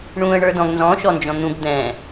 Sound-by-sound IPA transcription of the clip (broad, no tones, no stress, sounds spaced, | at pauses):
ɳ ũ ə̯ ɳ ə˞ d ɔ̃ ɡ n z ɔ̃ ʃ ɔ n d͡ʒ ɔ̃ n̪ ũ ɡ d̪ ɛ̃